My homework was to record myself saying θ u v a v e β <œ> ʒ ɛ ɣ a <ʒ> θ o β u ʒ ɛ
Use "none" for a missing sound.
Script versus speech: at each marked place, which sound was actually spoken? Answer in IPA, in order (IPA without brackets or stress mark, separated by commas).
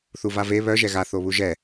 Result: œ, none